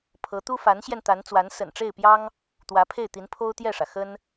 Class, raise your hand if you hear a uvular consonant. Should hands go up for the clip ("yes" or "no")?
no